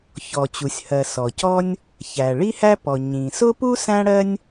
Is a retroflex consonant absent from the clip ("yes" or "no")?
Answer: no